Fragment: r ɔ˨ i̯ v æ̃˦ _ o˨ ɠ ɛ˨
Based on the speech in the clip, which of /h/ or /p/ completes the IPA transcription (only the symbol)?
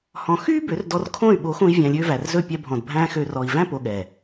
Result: p